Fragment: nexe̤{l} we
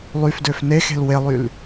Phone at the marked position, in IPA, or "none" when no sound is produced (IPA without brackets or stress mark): l